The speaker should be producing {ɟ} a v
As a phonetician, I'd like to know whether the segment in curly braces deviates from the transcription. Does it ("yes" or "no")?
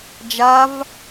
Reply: yes